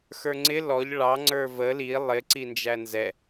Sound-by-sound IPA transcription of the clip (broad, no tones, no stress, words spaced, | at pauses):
xə˞ŋ͡ǀɪ lɔʎ ɭɑ ŋ͡ǀə˞və li lˠɪ ǀind͡ʒænzɛ